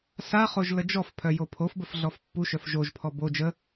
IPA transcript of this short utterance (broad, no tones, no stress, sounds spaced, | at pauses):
s a χ o ʒ l ə d͡ʒ ɔ f pʰ œ j o pʰ o f b ə f ɮ ɔ f pː u ʃ œ f ʒ o ʒ pʰ ɔ b o d͡ʒ ə